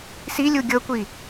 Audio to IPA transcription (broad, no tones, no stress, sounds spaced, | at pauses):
s i lʲ u ɡʲ ɤ kʷ i